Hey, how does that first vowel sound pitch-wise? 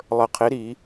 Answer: low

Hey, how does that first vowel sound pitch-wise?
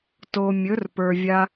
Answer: low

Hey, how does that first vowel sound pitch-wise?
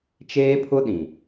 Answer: high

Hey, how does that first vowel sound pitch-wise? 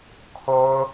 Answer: high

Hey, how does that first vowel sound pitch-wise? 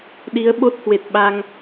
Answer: rising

